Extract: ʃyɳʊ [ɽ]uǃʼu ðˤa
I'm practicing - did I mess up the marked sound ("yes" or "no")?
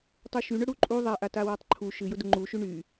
no